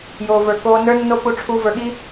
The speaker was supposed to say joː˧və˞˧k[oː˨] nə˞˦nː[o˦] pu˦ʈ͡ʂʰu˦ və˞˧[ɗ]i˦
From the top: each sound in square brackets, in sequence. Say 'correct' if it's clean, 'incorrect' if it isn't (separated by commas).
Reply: incorrect, correct, incorrect